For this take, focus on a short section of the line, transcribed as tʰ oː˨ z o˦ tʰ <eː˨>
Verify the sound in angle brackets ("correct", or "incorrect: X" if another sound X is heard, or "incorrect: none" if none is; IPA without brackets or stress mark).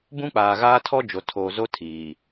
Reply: incorrect: iː˨